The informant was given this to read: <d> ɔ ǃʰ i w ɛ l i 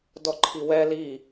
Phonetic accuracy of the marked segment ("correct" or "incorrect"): correct